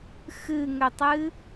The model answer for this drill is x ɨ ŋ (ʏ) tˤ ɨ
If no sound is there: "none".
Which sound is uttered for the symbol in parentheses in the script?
ʏ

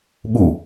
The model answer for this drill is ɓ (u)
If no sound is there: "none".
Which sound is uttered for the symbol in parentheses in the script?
u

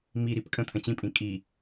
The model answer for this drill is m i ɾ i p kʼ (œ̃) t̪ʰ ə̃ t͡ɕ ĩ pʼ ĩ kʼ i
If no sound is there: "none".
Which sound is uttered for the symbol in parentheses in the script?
ə̃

